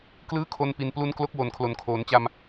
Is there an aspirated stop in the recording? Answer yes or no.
yes